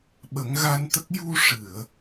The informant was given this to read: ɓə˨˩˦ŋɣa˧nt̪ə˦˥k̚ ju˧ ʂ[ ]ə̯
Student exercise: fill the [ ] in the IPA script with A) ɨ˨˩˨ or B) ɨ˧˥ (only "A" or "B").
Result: A